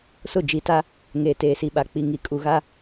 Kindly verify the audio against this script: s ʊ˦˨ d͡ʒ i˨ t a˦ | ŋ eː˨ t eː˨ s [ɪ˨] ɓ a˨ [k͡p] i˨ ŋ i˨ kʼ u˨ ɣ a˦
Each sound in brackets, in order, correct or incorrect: incorrect, correct

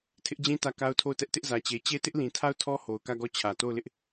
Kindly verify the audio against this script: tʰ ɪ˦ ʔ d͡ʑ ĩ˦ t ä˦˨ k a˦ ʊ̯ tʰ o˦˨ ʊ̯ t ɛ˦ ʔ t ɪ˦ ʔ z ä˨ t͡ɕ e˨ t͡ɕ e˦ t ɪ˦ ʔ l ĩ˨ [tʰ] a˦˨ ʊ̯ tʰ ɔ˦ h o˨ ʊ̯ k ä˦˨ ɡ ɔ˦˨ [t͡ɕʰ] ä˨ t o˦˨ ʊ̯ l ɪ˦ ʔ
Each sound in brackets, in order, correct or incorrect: correct, correct

